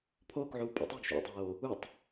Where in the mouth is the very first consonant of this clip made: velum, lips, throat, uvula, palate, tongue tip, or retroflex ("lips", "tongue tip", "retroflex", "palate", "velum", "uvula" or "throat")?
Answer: lips